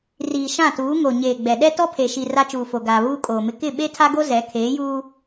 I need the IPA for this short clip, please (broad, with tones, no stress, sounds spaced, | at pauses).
r iː˨ ʃ ã˦˨ t uː˨˦ ŋ o˨ ɲ eː˨ ɡ͡b ɛ˨ ɗ ɛ˦ t ɔ˦ pʰ e˨ ʃ i˨ r a˦ t͡ʃ uː˨ f o˨ ɡ aː˨ β uː˦ kʼ oː˨ m ɪ˦ k ɪ˦˨ ɓ e˦ tʰ a˦ ɡ o˦ z ɛ˨˦ kʰ eː˨˦ j uː˦